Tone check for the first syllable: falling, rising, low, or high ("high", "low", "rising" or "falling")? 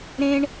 high